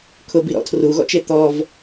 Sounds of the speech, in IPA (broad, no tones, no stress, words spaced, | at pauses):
kʰʊbiɾɔ̰ tʰruɣɔ̰t͡ʃe t̪ɔv